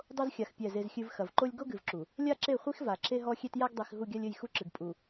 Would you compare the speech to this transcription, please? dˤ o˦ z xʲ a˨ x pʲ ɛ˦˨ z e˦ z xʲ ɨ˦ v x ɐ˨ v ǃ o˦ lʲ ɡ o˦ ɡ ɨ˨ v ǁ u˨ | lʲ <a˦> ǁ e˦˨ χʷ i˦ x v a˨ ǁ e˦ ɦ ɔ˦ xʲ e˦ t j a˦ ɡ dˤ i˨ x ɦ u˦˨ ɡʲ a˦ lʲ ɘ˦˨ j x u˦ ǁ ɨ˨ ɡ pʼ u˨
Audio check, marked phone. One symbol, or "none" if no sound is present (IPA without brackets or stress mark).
a˦